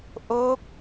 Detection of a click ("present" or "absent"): absent